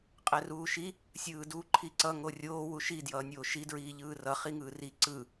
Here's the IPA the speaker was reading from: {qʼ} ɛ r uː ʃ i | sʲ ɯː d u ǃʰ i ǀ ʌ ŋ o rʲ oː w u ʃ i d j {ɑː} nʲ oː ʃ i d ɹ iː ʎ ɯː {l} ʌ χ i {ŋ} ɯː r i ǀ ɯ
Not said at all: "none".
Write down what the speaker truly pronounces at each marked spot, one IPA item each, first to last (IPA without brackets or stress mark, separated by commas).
qʼ, ʌː, r, ŋ